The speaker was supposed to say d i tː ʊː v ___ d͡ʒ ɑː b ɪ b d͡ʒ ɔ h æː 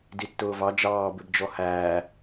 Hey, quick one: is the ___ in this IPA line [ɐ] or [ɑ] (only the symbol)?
ɑ